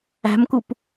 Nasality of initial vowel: oral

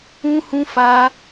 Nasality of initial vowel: nasal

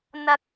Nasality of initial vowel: oral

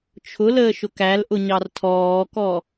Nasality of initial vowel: oral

